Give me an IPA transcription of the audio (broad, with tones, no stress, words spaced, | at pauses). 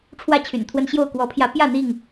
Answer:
ʈ͡ʂʰwä˥˨t͡ɕʰy̰˨˩nt̪ʰwə˦nɕjo˥˨ʊ̯ kwɔ˨˦pʰjä˨˦ pjä˥˨n̪i˥˨ŋ